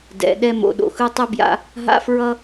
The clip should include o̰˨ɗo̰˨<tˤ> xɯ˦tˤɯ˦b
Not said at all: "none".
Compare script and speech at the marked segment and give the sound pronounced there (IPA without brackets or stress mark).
none